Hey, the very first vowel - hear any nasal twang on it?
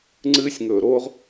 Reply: no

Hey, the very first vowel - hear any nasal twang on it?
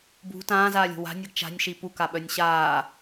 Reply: no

